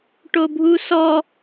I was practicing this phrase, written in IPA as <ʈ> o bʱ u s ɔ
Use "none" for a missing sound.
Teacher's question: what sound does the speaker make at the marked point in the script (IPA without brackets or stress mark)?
ʈ